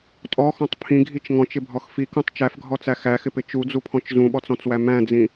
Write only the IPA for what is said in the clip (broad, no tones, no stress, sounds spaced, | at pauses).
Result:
tʼ ɔ x ɔ̃ tˤ pʰ ĩ ɡʱ i t͡ʃ ŋ ɔ̃ t͡ʃ ɪ bʱ ɔ x f i k ũ tˤ t͡ʃ æ f ɡʱ ɔ t͡s æ x æ x ɪ p ɪ t͡ʃ u d͡z u pʰ ɔ̃ t͡ʃ z ũ ɓ ɔ t͡s ɔ̃ t͡s w æ m æ̃ d͡z ĩ